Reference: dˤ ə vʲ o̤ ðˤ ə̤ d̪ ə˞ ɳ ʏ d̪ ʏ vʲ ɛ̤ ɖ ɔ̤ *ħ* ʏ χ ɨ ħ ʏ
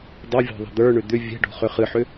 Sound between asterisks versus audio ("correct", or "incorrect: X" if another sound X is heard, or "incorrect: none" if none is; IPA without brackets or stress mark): incorrect: χ